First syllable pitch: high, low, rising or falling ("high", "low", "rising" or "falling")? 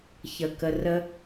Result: low